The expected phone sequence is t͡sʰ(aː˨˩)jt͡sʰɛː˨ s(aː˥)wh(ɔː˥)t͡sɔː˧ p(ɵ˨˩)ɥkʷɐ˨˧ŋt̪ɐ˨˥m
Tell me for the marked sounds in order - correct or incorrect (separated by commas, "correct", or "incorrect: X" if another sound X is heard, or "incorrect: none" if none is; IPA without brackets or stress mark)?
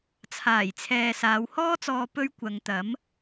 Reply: correct, incorrect: aː˨˧, correct, incorrect: ɵ˥